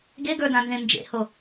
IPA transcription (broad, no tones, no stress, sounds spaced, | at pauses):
ɡ e ɡ ə˞ d ã n z ẽ n d͡ʒ ḛ h o